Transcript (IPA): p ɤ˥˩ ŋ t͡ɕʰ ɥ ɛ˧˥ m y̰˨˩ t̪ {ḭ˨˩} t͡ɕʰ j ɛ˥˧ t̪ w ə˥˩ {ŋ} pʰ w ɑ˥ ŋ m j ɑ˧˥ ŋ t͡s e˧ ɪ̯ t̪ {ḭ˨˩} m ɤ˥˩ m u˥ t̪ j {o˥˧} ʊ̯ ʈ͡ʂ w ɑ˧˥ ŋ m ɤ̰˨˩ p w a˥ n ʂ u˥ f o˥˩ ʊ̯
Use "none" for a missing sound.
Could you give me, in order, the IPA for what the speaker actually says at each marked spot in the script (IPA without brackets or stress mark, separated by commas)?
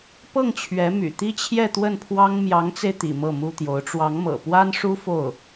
i˥, n, ḭ˨˩, o˧˥